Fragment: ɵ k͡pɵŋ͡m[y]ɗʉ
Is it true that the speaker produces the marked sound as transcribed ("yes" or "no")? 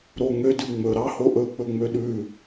no